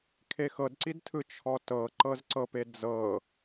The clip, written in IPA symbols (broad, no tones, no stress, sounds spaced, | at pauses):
kʰ e x ɤ d ǀ i d tʰ ɯ t͡ʃʰ ɔ t ɤ ǃ ɤ z ǀ ɤ p e d͡z ɤ